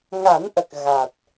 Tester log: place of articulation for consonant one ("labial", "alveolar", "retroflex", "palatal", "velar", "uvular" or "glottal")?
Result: velar